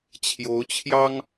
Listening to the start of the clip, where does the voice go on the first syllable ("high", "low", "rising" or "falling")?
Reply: rising